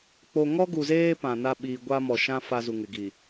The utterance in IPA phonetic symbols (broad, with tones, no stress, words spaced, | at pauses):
k͡po˨ŋɔ˦ɡu˨zeː˦ pã˨na˦ ɓiː˨ɡʷa˦mɔ˨ʃã˦ fa˦ zu˨ŋɪ˨ɡi˨